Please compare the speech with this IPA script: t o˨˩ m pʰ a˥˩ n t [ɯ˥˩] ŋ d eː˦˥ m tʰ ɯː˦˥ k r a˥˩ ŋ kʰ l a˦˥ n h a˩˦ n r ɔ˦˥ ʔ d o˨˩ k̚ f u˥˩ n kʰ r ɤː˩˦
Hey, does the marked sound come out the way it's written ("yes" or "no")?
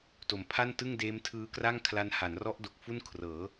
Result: yes